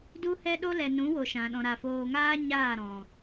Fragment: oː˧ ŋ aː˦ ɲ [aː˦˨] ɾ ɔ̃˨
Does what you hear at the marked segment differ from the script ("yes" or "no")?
no